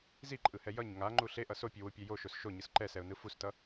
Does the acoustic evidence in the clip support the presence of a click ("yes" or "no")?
yes